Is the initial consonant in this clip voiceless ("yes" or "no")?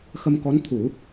yes